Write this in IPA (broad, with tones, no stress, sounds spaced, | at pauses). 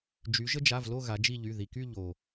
d͡ʒ y˩˧ ʒ ə˦ d͡ʒ a˩˧˩ v l o˦˨ ɣ a˩˧ d͡ʒ i˦˨ ʎ y˩˧˩ ð i˩ k y˦˨ ʎ o˩